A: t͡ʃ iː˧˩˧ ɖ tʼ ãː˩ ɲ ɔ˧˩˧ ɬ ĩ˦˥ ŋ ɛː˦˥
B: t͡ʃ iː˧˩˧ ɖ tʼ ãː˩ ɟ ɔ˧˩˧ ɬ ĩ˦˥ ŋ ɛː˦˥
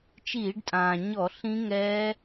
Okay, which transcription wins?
A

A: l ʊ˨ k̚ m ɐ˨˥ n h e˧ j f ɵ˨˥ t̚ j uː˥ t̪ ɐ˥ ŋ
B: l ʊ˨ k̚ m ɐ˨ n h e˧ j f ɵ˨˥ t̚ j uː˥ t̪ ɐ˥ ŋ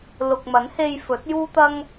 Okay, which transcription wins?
A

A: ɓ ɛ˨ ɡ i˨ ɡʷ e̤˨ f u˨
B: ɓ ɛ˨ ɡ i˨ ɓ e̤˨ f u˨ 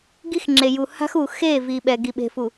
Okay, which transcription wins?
B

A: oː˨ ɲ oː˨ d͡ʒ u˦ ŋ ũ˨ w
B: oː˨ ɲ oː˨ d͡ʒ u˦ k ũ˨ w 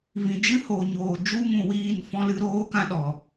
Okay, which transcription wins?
A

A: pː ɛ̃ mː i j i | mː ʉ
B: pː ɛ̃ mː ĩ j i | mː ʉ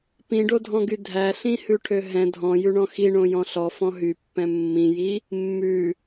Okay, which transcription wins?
B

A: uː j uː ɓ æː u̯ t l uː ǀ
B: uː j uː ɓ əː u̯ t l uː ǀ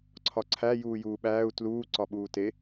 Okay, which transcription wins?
A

